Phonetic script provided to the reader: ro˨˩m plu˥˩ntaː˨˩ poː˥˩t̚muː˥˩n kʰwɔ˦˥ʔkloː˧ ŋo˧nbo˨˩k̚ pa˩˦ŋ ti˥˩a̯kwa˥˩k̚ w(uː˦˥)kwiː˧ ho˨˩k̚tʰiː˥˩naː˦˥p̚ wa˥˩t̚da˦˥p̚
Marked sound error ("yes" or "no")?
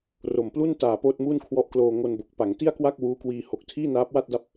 no